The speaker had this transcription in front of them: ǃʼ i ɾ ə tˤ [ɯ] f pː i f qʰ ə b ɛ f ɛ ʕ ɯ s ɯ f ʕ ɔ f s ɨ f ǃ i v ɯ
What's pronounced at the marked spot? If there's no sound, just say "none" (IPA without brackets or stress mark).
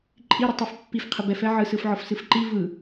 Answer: ɯ